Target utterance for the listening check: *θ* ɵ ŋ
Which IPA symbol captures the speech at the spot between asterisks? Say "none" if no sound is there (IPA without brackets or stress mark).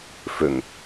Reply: f